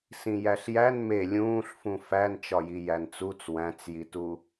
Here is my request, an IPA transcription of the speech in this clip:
s ĩ j æ ɬ j æ n m e lʲ ũː ɬ f ũ f æ n t͡ʃ ɒ j i j æ n t͡s u t͡s w æ̃ t͡s j i t u

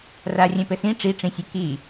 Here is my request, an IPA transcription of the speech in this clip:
r a rʲ ɛ̃ p ɘ s ĩ ʈ͡ʂ i ʈ͡ʂ ĩ sʲ e k i

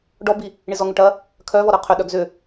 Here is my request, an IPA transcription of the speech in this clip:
ɖ ɔ b i | ɳ i z ɔ ŋ ʏ ʈ ɐ | kʰ œ v ɔ ɾ œ qʰ ʏ ɗ œ ɡ z ʏ

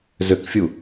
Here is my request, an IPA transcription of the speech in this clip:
z ø k fʲ u

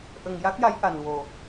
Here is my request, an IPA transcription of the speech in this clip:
ʔ ə˨˩ ŋ j a˦˥ k̚ j a˧˥ j ʔ a˨˩ n w o˨˩

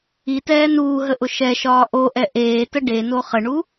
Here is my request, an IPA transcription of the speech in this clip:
i t ɛː n uː ɦ ə ʔ ʊ ʃ ɛ ʃ ɒː ʔ o ʔ ɛ ʔ eː t ə ɖ e n o χ ə ɳ u

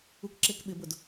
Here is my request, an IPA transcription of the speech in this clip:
u k ǁ e k ɓ ɪ b ʊ d

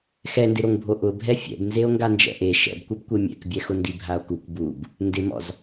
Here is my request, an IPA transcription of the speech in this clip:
x ɛ n d ɪ ɾ o ŋ bʱ o ʔ ʊ bʱ ɛ fʲ ɛ̰ b n z e o̯ ŋ ɡ a n d͡ʒ ɛ̰ ʔ e ʃ ɛ̰ b kʷ ɛ b kʷ e mʲ ɛ̰ k bʲ ɛ x ʊ n d i bʱ a o̯ k u k b u b | n d ɪ m ɔ̰ z

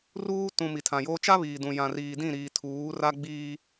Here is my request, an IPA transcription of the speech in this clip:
r uː˦ t ũ˨ m i˨ tʰ ã˨ j oː˦ t͡ʃ a˦ β iː˨ d ũ˨ j ã˨ r iː˨ d ĩ˦˨ ɾ iː˨ tʰ uː˨˦ r a˦ ɡ͡b iː˦

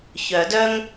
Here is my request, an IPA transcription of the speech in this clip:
ç œ˨˩˦ d œ˥ ŋ

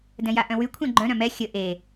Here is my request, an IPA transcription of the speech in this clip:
d ɛ̃ j a ʔ œ̃ w y kʷʰ ɛ̃ ɡ͡ǃ œ̃ ɾ œ̃ m ɛ xʲ ə ʔ e

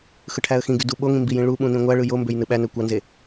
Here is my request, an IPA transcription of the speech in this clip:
x ɯ ʈʰ æ ə̯ x ĩ ɡ y d u ɓ o ŋ ĩ m b i j ĩ ɭ u ɓ ũ n ĩ ŋʷ æ ɭ ɯ j o m b ø j n ɯ ɓ æ n ø kʷ ɑ n z e

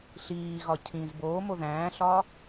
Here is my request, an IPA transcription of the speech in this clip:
ɬ iː ɣ ɒ cʰ ĩ z b oː m o ð æ̃ː ɬ ɒː

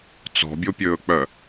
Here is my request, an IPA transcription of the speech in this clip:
t͡s ɔ̤ bʲ o pʲ ɵː k͡p œ

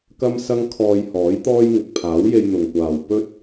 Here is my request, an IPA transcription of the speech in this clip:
k ɐ˥ m s ɐ˥ ŋ kʰ ɔː˧ j h ɔː˨˥ j t̪ ɔː˥ j ŋ ɪ˨ k̚ pʰ aː˨˥ w j e˧ j n̪ ʊ˨ ŋ kʷ aː˨ w p ɵ˥ t̚

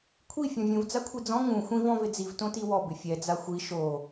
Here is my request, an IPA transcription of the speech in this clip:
kʷʰ i fʲ ɔ̃ vʲ ũ v d͡z a kʷʰ i d͡z ɔ̃ ŋ ũ xʷ ĩ v ɔ̃ v ɪ d͡z i v t õ t i w ɔ b ɪ fʲ ɛ d͡z a xʷ i ʃ o

